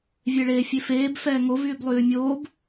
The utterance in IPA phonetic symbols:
vʲeɭeːfʲefeːb fɛːŋo vyːblˠyːmʲoːb

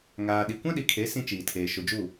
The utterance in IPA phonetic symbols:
ŋaː˨ ɗi˨kʷã˦ɗi˨kʰe˨˦ sĩ˦t͡ʃiː˨tʰeː˨ ʃʊ˨d͡ʒu˦˨

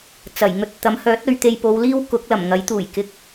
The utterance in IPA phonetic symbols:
t͡sɐ˨˩jŋɵ˧t̚ t̪ɐ˨˥mhœː˨˥t̚ɵ˨˧ɥt̪e˧j po˨˧wliː˥w kʊ˨˥k̚lɐ˨˩mŋɐ˨˥jt̪uː˨˩j kɪ˧k̚

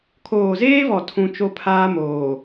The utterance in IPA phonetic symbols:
kʰoː˨zeː˦vɔ˨ tʰũ˦ t͡ʃo˦pʰaː˦moː˨

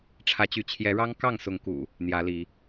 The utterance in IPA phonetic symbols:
ʈ͡ʂʰä˨˦t͡ɕy˨˦ t͡ɕʰjɛ˨˦ɻɑ˦ŋ kɑ˥˨ŋ sʊ˨˦ŋkṵ˨˩ | n̪jä˨˦li˨˦

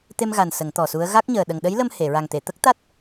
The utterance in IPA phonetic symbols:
t̪e˧mɣa˨˩n sə˨˩˦ŋt̪ɔ˨˩su˧˥ə̯ ɣa˦˥k̚ɲəː˨˩ ɗə˨˩ŋɗə˧˥jlə˧m he˨˩˨ɹa˨˩ŋt̪e˨˩˨ t̪ə˦˥k̚t̪a˦˥t̚

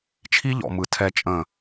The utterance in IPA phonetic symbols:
t͡ʃʰi˦ʎɔ̰˨mɯ˨ tʰɛ˨t͡ʃʼə̃˨

